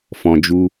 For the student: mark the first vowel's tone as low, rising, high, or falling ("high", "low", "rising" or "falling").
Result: low